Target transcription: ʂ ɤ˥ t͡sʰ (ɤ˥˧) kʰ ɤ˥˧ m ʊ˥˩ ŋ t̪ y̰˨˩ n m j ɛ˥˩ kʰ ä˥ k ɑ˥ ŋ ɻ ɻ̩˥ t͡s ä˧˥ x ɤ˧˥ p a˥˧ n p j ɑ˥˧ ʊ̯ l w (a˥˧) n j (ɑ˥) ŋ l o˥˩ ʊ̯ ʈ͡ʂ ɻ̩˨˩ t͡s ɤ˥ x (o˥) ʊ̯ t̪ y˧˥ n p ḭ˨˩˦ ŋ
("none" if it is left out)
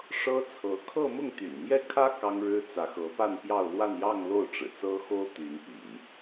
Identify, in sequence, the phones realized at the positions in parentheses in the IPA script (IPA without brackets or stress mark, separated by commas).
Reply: ɤ˧˥, a˥˧, ɑ˥˧, o˥